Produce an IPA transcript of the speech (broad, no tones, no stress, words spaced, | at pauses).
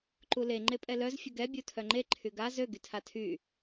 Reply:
ǃule ŋ͡ǃepʼɛlœz fʲəɡɛ bʲutʰœŋ͡ǃe ǃʰyɡa zø ɡytʰatʰy